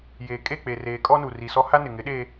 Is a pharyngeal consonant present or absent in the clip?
absent